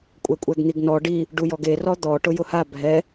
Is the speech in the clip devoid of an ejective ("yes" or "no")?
no